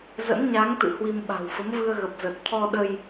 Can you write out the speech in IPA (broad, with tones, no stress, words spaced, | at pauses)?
zə̰˧˥n ɲa˨˦ŋt̪ɨ̰˧˨ hwi˧m ɓa̤˨˩wfə˨˦mvɨ˧ə̯ ɣə˨˩p̚ zə˨˩t̚t̪ʰɔ˧ɗə˧j